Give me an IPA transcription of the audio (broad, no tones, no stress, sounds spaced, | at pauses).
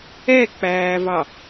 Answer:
ɛ k͡p æː v ɑ